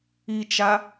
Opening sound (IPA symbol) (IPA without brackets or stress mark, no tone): i